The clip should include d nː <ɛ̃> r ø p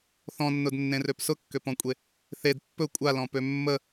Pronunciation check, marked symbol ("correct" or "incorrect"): incorrect